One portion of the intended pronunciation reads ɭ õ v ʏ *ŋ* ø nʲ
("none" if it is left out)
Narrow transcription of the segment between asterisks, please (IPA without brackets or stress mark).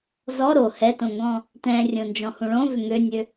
ŋ